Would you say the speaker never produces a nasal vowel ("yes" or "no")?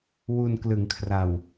yes